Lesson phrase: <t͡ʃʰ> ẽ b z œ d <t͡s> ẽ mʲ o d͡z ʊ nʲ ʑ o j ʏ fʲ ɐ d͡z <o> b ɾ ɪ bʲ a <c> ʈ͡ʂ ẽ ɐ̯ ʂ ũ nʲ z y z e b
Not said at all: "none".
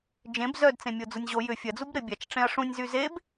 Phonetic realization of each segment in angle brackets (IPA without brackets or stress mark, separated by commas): d͡ʒ, t͡s, u, t͡ʃ